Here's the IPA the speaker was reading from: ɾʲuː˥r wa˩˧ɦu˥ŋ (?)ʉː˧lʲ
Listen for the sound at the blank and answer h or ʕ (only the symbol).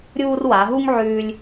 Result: ʕ